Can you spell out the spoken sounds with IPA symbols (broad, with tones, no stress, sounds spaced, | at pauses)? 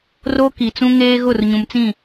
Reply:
r o˦ k i˨ t͡s ũ˦ ŋ eː˦ ɣ ʊ˦˨ r ɲ ũ˨ m t͡s ĩ˦˨